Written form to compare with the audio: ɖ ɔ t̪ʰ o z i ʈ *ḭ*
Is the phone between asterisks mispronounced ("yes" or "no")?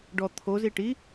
yes